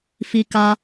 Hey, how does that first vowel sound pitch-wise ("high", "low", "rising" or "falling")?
high